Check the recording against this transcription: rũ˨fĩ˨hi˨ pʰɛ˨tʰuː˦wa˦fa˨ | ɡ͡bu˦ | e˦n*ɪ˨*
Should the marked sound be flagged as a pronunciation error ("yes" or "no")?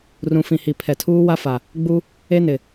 no